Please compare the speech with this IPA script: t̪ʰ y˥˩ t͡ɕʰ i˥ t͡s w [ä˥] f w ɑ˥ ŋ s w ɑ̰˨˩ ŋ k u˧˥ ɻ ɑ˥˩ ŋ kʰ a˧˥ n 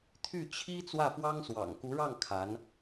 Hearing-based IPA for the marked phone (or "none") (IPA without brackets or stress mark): ä˥˩